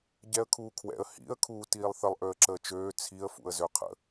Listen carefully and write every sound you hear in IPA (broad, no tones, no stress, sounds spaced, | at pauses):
ɟ ɛ ə̯ kʰ uː kʰ w ɛ̰ ə̯ h ḭ ə̯ kʰ uː t iː lˠ θ ə lˠ ʔ ø ə̯ ǁ əː t͡ʃ øː t͡sʰ i ə̯ f ṵ ə̯ z ø qʰ ə̰